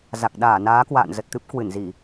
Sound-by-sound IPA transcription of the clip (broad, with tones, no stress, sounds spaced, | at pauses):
z a˨˩ k̚ ɗ aː˧˩ n aː˨˦ k w a̰ː˧˨ n z ə˨˩ t̚ t̪ ɨ˦˥ p̚ k w ɨ˧˩ n z i˧˩˨